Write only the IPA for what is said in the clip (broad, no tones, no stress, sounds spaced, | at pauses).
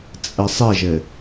t͡sʼ ɘ sˤ ɪ ʒ ɘ